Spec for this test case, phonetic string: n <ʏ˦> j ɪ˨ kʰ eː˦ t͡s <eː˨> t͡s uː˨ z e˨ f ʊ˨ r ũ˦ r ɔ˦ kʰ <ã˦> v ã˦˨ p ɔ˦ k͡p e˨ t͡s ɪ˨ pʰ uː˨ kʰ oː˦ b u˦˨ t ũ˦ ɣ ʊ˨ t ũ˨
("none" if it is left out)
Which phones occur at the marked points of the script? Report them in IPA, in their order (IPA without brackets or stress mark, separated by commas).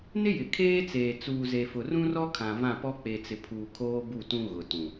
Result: ɪ˦, eː˨, ã˨